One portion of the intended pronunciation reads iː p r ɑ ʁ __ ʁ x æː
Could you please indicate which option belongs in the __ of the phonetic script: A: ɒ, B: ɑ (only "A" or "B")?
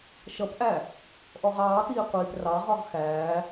A